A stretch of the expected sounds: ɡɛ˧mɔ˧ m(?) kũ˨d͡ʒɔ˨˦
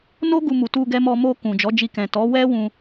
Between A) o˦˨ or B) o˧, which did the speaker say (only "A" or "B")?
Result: B